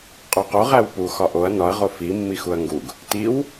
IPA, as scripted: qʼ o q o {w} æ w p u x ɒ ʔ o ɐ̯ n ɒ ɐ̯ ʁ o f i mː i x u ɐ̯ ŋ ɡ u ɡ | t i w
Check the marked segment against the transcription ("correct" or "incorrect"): incorrect